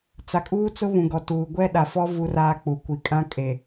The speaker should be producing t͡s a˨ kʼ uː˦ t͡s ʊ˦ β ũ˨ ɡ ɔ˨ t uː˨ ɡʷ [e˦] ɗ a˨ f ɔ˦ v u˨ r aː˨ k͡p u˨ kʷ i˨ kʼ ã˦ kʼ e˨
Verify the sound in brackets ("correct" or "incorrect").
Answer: incorrect